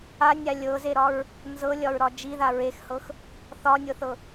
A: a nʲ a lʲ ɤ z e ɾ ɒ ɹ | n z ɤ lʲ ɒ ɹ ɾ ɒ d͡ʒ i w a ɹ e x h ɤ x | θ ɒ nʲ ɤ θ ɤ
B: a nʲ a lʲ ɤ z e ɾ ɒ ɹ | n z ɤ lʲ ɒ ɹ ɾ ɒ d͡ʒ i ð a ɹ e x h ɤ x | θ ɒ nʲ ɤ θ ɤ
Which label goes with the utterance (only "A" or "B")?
B